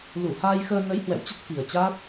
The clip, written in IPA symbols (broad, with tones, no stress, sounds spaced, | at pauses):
l u˧˩ h aː˧ j x əː˧ n ə˨˦ j h w ɛ̰˧˨ w t͡ɕ ə˦˥ t̚ f i˨˩ ə̯ t͡ɕ aː˦˥ t̚